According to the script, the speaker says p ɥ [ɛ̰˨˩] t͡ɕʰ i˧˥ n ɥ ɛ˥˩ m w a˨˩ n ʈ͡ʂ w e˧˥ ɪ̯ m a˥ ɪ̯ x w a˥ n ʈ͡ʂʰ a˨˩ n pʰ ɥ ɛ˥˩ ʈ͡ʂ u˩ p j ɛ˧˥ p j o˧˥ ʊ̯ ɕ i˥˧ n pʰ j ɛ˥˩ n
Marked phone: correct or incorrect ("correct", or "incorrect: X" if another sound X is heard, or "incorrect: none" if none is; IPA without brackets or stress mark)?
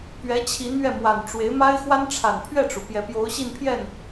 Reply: incorrect: ɛ˧˥